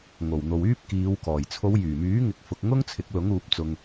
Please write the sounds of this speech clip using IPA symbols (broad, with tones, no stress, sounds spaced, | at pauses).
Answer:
ŋ o˨˩ w n̪ o˨ w yː˥ p̚ k iː˨˧ w k ɔː˨˩ j t͡sʰ o˨˧ w j yː˨˩ m yː˨˥ ŋ ɪ˧ k̚ f ʊ˧ k̚ ŋ ʊ˥ ŋ t͡sʰ ɪ˨˥ k̚ l ʊ˨˥ ŋ uː˨˥ p̚ t͡s ʊ˧ ŋ